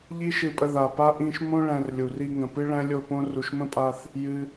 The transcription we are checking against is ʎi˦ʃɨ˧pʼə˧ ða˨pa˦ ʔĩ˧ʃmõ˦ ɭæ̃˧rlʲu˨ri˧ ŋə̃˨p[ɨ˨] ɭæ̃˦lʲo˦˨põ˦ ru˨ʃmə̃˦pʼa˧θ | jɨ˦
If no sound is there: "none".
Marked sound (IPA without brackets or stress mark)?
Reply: ɨ˦